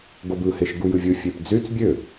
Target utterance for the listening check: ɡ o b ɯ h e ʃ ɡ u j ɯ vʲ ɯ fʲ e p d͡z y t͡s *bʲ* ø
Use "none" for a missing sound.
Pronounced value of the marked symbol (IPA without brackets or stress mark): bʲ